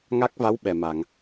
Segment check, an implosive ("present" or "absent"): present